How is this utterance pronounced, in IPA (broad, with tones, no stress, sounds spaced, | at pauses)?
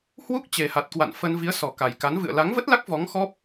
h w u˦˥ k̚ t͡ɕ e˨˩ h a˨˩ t̚ k w a̰˧˨ n f ə˧ n v i˨˦ ə̯ s ɔ˨˩ k a˨˩ j k a˨˦ n v ɨ̰˧˨ ə̯ l a˨˦ ŋ v ə˦˥ t̚ l a˦˥ k̚ v ɔ˨˦ ŋ x ɔ˦˥ p̚